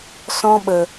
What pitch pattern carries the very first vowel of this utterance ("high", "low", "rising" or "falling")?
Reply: high